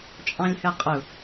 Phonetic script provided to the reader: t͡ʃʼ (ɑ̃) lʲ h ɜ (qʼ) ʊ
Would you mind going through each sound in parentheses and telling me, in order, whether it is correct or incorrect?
correct, correct

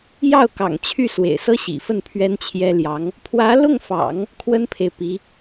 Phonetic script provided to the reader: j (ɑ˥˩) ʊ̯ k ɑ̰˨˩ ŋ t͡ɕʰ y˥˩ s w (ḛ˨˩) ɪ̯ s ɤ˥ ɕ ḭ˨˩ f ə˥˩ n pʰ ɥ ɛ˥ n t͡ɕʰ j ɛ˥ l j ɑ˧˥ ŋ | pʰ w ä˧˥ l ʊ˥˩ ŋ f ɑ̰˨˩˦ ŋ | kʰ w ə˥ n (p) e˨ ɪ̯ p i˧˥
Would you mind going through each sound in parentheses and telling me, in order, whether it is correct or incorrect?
correct, correct, incorrect: pʰ

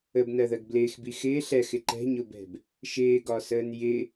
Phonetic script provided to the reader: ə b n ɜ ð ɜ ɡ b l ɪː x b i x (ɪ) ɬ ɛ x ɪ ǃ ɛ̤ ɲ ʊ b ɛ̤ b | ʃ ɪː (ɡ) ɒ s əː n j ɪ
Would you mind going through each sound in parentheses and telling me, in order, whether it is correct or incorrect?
incorrect: ɪː, correct

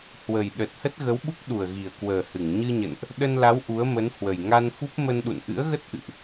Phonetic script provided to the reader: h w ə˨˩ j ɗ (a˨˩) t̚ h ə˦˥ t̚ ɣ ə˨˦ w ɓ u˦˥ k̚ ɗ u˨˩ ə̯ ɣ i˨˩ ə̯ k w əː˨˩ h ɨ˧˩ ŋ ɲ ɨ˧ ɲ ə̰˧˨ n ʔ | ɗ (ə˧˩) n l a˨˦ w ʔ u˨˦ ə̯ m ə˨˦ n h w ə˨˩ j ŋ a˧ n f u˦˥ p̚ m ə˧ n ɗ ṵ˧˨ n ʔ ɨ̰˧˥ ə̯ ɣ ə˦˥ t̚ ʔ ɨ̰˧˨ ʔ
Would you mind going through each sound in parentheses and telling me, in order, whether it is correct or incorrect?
incorrect: ə˨˩, incorrect: ə˧

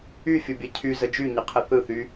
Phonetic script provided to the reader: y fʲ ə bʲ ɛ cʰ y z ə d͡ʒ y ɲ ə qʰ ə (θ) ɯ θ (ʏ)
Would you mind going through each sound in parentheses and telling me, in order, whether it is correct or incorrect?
correct, incorrect: y

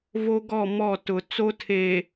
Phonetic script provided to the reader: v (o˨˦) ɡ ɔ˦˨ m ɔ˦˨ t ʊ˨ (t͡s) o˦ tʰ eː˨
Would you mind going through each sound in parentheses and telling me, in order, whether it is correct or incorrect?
incorrect: o˦, correct

